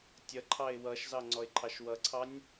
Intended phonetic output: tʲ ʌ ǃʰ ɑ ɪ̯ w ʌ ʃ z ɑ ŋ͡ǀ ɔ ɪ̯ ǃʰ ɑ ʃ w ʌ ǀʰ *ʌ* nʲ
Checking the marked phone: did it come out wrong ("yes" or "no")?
yes